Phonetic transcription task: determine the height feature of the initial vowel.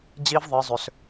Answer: high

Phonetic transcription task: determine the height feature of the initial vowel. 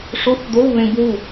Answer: mid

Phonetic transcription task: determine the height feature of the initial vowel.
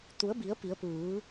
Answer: high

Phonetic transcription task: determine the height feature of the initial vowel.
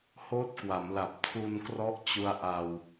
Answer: mid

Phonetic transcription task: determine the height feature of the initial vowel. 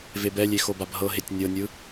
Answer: mid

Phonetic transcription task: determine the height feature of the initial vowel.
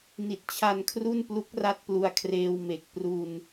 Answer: high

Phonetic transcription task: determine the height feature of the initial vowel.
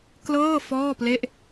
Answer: mid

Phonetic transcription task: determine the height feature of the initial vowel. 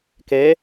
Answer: mid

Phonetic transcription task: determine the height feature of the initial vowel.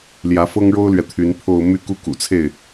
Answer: low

